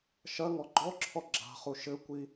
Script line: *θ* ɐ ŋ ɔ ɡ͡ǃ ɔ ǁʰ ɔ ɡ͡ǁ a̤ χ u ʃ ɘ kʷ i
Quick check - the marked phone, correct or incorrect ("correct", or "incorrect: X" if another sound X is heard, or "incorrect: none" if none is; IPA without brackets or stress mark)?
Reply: incorrect: ʃ